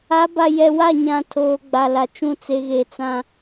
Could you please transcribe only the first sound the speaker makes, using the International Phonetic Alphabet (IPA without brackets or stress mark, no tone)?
a